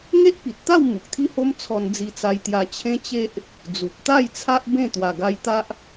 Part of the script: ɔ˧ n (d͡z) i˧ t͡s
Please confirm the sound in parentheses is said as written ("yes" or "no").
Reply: yes